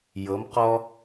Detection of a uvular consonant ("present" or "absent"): present